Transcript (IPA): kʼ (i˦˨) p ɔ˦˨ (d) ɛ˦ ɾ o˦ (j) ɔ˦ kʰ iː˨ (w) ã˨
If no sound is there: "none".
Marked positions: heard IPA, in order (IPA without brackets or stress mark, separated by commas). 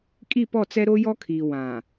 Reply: i˦˨, t͡s, j, w